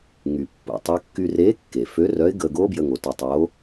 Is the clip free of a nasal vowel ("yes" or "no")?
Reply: yes